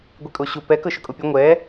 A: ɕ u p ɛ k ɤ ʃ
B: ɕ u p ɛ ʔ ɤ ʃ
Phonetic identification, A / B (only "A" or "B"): A